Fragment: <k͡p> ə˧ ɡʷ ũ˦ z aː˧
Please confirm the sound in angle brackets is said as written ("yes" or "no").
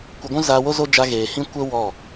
no